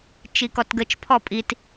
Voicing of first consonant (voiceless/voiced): voiceless